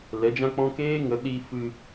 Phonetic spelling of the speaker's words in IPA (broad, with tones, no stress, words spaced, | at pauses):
lɛ˨˦d͡ʒã˦k͡pɔ̃˦ keː˦ŋə˨˦ ɗi˧fɨ˧